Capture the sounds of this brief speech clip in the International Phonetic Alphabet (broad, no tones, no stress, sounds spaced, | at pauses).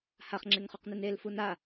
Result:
h a χ ŋ͡ǁ e ŋ χ u q n e n e l f u n a